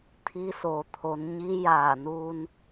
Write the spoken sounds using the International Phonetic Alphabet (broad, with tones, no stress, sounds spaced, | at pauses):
t̪ʰ iː˧ s o˩ t̪ʰ o˩˧ n ɲ i˧˥ j aː˧˩ n uː˧ n